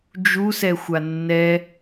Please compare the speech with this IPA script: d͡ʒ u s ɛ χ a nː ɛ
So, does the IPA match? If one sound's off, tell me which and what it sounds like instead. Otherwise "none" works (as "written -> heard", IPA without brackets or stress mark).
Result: χ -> xʷ